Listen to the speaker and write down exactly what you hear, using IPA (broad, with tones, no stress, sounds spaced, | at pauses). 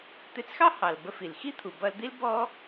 t̪ ɪ˧ t͡s x ɑ˥ h ɑ˩ l b ə˧ f i˩ l x i˥ t̪ʰ u˩ b ʌ˧ l d̪ i˥ l b ɔ˥